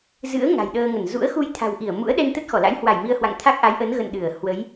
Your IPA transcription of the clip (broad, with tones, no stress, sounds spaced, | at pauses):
z ɨ̰˧˥ ə̯ ŋ a̤˨˩ j ɗ əː˧ ŋ ə˧˩ n z ṵ˧˥ ə̯ x u˧ j t̪ʰ a̤˨˩ w ʔ i˧˩ ə̯ m ṵ˧˥ ə̯ ɗ ɛ˧ n t̪ ə˦˥ t̚ x ɔ˧˩ l a̰˧˥ j h w a˧˩ j m i˧ ə̯ h w a̰˧˨ ŋ t̪ʰ a˦˥ k̚ ʔ a˨˦ j ʔ ə˨˦ n ɣ ə̰˧˨ n ɗ ɨ˧˩ ə̯ h w ə˨˦ j